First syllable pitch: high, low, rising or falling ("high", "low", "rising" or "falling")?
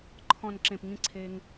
low